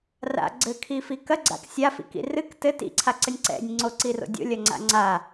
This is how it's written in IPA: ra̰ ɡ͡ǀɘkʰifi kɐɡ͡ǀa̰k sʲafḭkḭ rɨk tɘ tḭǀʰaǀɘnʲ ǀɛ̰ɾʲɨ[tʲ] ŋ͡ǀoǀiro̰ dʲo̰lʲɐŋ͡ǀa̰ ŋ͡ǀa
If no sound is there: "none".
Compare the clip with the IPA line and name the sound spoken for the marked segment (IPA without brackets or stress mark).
nʲ